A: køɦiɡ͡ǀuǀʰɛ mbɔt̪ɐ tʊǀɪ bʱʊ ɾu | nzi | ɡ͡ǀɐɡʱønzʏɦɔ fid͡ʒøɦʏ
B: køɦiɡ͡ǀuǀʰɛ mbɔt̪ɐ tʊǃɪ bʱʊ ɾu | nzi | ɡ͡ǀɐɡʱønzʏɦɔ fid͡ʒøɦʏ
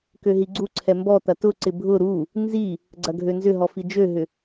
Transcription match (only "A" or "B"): A